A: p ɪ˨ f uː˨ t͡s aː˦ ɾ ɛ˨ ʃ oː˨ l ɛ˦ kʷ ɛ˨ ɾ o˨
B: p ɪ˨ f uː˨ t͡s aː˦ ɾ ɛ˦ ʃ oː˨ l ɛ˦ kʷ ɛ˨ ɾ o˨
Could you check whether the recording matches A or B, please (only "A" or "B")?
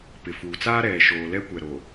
A